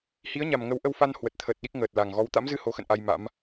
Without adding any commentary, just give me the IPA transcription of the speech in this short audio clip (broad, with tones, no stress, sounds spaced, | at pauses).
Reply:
h i˨˦ ə̯ ɲ a˨˩ m ŋ ə˨˦ w ʔ ə˧ w f a˧ n h w ə˨˩ t̚ t̪ʰ əː˨˩ t̚ ɗ i˦˥ k̚ ŋ əː˨˩ t̚ l a˨˩ ŋ ɣ ɔ˨˦ w t̪ a̰˧˥ m z ɨ˧ h o˨˦ x ə̰˧˨ n ʔ a˧ j m a̰˧˥ m